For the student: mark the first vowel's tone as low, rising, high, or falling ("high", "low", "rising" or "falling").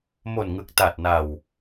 low